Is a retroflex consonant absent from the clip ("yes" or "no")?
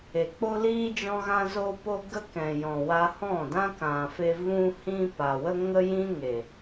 yes